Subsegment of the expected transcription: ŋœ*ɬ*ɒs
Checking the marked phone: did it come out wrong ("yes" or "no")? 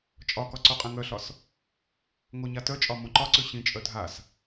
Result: no